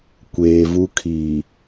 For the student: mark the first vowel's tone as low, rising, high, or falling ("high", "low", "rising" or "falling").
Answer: low